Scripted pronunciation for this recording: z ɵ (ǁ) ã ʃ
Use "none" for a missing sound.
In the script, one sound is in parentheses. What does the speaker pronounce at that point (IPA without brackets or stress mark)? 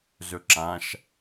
ǁ